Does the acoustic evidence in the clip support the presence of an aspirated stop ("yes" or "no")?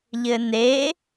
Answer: no